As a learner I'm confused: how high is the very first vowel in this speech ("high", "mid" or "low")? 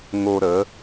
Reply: mid